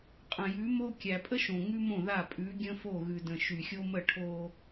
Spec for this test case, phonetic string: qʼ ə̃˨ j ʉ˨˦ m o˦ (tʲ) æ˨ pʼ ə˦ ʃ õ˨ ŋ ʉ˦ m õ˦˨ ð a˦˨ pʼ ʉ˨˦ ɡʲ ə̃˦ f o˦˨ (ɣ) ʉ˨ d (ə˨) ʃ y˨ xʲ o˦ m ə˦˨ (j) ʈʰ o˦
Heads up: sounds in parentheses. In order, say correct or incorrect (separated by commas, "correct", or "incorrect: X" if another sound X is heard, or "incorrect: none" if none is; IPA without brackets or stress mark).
incorrect: kʲ, correct, incorrect: ə̃˨, incorrect: none